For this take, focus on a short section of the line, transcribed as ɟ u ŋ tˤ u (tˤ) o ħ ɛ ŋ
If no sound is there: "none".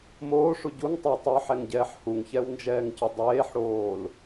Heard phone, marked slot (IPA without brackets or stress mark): tˤ